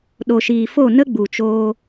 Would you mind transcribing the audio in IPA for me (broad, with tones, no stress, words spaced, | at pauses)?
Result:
ɗo˨ʃiː˨fo˦˨ nə˦ɡ͡bu˨t͡ʃoː˧